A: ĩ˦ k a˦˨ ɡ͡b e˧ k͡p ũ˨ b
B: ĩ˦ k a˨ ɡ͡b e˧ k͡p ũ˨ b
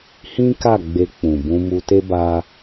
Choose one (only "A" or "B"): A